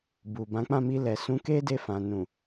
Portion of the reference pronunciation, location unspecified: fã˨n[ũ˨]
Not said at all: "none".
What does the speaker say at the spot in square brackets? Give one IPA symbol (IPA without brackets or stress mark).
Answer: ũ˨